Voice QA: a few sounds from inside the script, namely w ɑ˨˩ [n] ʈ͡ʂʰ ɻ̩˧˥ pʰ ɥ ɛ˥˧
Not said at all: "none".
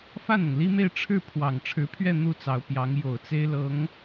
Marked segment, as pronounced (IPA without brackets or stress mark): ŋ